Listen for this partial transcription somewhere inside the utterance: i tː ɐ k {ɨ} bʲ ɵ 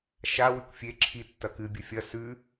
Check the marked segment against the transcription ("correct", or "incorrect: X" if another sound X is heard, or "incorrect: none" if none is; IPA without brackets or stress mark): correct